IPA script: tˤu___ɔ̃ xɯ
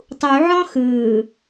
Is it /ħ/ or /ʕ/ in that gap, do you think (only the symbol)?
ʕ